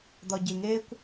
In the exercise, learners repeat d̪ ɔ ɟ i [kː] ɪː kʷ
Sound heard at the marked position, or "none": ŋ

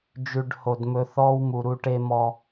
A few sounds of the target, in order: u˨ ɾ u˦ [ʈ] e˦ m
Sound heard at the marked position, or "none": ʈ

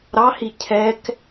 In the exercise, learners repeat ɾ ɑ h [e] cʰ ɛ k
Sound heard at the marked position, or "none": i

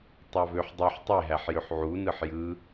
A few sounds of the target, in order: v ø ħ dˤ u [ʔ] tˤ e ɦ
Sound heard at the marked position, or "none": ħ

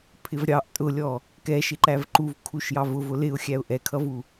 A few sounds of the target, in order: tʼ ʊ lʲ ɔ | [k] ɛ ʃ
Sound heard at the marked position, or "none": k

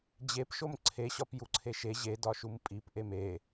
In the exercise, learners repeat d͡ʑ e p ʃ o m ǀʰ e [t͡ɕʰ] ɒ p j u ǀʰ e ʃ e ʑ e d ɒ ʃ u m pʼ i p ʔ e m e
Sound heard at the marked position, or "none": ɕ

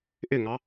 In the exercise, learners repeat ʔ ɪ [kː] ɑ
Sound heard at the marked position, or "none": ŋ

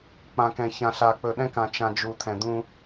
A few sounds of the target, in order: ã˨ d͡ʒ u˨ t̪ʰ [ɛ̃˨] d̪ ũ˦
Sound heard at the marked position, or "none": ɛ̃˨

